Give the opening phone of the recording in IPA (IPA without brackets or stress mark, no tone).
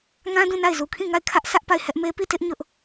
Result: ŋ